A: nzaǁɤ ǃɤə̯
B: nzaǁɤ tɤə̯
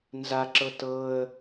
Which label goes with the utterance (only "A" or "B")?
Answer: B